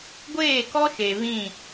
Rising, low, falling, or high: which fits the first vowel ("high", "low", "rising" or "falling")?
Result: falling